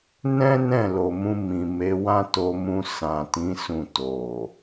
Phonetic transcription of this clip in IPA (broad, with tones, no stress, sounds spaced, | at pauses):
n ɛ̃˦ n ɛ̃˦˨ l o˨ m ũ˧ m ĩ˨ m e˨˦ w ã˦ t o˧ m ũ˧ s ã˨ t ĩ˨˦ s ũ˦˨ t o˨